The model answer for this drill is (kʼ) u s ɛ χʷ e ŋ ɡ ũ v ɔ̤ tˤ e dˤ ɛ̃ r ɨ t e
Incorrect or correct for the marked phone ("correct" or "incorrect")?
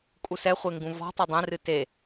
correct